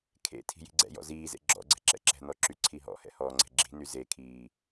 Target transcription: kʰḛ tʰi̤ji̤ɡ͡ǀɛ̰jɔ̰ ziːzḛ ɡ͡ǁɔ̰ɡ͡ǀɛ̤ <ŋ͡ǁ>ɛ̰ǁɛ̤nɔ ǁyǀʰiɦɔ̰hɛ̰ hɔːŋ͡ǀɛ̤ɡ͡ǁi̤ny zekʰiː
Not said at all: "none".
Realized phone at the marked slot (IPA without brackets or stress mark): ǁ